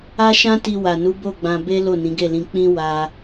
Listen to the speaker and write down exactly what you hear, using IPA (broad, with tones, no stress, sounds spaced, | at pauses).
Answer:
a˦ ʃ ã˦ t i˧ w a˨ n u˨˦ b o˦˨ ɡ͡b ã˧ b e˦ l o˦˨ n ĩ˨˦ ɡ e˦˨ l ĩ˧ k͡p ĩ˦ w a˦